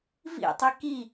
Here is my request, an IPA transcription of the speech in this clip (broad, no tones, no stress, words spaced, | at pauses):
vḭtˤi ki